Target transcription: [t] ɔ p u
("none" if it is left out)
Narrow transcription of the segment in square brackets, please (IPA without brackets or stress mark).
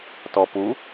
t